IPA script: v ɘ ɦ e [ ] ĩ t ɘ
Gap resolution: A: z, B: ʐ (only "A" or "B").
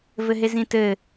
A